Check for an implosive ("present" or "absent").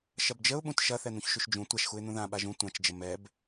present